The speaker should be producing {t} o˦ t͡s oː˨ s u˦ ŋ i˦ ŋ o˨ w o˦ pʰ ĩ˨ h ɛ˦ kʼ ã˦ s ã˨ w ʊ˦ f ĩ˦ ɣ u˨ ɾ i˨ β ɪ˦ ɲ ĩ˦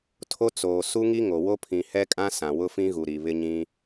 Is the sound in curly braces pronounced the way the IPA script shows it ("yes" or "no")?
no